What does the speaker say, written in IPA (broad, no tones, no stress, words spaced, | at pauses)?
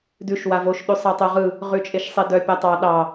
dʉʃ wavoʃ ɗʉsˤɑtˤoʁɯ | ʁʉt͡ʃʼeʃsˤedœ pʲatˤɑ ɗɑ